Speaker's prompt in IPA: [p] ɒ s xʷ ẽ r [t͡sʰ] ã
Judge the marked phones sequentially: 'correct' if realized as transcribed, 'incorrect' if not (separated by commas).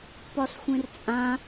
correct, incorrect